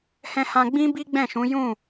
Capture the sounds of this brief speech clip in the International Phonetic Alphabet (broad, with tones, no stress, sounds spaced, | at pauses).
h ɛ̃˧ h ã˧ ɡ͡b ĩ˦ b i˦ ɡ͡b ɛ̃˦˨ ʃ ũ˨˦ j ũ˦˨